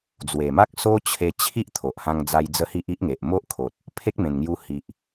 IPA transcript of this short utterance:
d͡zwe˨˩ma˦k̚ so˦t͡ɕʰe˧t͡ɕʰi˦ʔ t̪ʰo˨ʔhã˧ŋd͡za˧j d͡zə˦hi˦ʔ i˦ʔŋe˨ʔ mo˦ʔkʰo˨t̚ | pʰe˦k̚mẽ˨˩nŋju˧hi˨ʔ

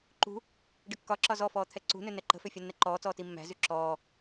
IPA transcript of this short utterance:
ǃṳ | ɖəkːɒǁɒ zɔfɔː t̪ʰɛǀṳnø nɛǃə̤fø fʲanːɛǃɔːt͡sɔː timːæ̤zy ǁɔː

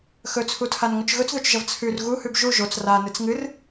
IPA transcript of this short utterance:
xɵt͡sʰutʰanŋɵt͡ʃ ɣɵt͡sðɵt͡ʃʒɐv t͡sʰʉr ɣuhʉb ʒu ʒot͡s ranɨt͡s ŋɨr

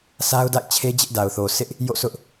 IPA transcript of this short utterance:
sa˦ʊ̯ da̰˦˨ɪ̯t͡ɕʰe˦d͡ʑɪ˦ʔda˨ʊ̯ θo˨sɪ˦ʔ | jo̰˦˨sʊ˦ʔ

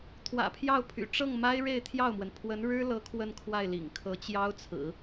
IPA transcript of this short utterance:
t̪ʰwä̰˨˩pʰjɑ˥˩ʊ̯pʰy̰˨˩ ʈ͡ʂɤ˥˩ŋma˥ɪ̯ ɻe˥˧ɪ̯t̪ʰjɑ˥˩ʊ̯mwə˩n pʰwə˧˥n ɻɻ̩˥lɤ˧˥ kʰwə˥˧nkʰwa˥˩ɪ̯lḭ˨˩ŋ kʰɤ˧˥ t͡ɕjɑ˥ʊ̯t͡sʰɹ̩˨˩˦

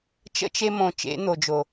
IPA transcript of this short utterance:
t͡ʃə̰˧t͡ʃe˧mõ˨ t͡ʃḛ˨˦n̪o˨d͡ʒo˨

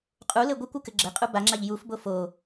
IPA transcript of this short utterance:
qʼulɘ ɡʷɯkʷɯkɘ ɡ͡ǁɘqʼu baŋ͡ǁaʎ jufbo fo

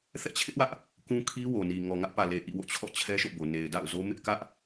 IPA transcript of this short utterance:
θɛ̰˦˨t͡ɕʰɪ˦ʔwä˦ʔ | kũ˦ kʰi˦wo˨ni˨ ŋɔ˨ŋä˦ʔpä˨le˨ ʔḭ˦˨wo̰˦˨t͡ɕʰɔ̰˦˨ t͡ɕʰɛ˦ʃo̰˦˨bo˨ ne˨ɪ̯da̰˦˨ʊ̯zo˦ mɪ˦ʔkä˦ʔ

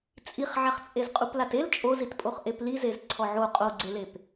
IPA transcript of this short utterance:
t͡sʼiχʕaχt͡sʼez qʼuplatel t͡ʃʼozitpʼoχ ʔeplizez ǀʰɔʕo qʼoɡ͡ǀelep

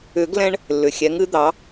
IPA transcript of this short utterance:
ʏ˨˩˦ɡlɛ̃˧ɳ | lːʏ˩xʲɛ˩˥ŋɨ˩˥ d̪ɑ˩˥

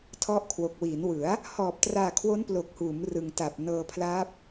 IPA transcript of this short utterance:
tʰɔ˦˥ʔkʰwo˨˩k̚ wiː˩˦nwɯ˩˦a̯ | hɔː˨˩p̚traː˨˩ kʰwo˦˥nplo˨˩k̚huː˩˦m rɯ˨˩ŋta˨˩p̚ nɤː˧pʰlaː˦˥p̚

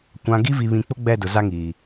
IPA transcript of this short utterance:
kʷã˨ɡi˦ vi˨βĩ˨k͡pʊ˦ ɡ͡bɛ˦˨dʊ˨ za˦ŋiː˨

